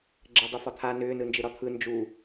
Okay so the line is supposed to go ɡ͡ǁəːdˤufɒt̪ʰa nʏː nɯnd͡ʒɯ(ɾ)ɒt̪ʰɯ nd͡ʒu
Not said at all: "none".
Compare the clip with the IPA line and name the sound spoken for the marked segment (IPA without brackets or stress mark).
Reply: ɾ